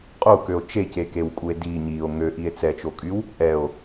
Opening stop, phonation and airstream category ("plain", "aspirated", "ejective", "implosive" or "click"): ejective